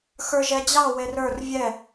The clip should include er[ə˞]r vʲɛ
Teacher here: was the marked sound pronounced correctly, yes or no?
yes